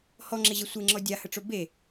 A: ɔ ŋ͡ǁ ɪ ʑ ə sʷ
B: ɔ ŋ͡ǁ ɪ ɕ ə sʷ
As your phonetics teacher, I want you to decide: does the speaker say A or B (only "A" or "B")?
A